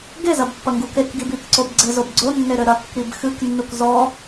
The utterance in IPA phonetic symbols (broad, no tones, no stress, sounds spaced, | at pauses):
ɡ e z ɐ b pː ɐ ŋ ɡ u k e k ɡ i b i k ǀ o b ɡ͡ǀ ɘ z o b ɡ͡ǀ o nː e ɾ ɘ ɾ ɐ kː i b x ɨ k nː u k z ɔ